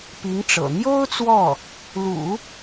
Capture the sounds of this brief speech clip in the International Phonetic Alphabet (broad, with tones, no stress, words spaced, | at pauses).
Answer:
pi˧˥ŋ ʈ͡ʂɤ̰˨˩ n̪jo˥ʊ̯ t͡swɔ˥˩ | lṵ˨˩˦